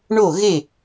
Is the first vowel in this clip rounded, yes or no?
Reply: yes